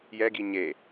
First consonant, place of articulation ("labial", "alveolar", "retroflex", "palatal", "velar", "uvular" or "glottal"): palatal